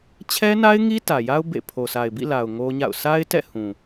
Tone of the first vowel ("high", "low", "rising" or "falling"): high